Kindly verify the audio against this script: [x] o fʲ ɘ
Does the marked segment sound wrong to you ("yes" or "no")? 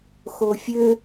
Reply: no